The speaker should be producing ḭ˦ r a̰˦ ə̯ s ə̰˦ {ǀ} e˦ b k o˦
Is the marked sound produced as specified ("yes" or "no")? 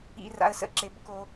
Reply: no